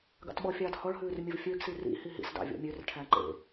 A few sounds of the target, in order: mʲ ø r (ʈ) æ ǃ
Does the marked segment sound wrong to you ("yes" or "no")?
yes